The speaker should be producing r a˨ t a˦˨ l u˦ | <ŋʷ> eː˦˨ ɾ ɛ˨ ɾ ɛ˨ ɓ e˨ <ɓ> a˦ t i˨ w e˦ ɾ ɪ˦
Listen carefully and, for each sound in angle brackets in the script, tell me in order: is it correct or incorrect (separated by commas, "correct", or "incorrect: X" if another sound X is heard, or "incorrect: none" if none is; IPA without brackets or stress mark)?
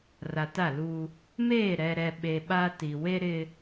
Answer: incorrect: m, correct